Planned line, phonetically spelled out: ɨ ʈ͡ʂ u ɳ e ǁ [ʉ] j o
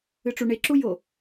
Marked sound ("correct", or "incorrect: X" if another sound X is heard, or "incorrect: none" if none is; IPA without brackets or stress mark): incorrect: u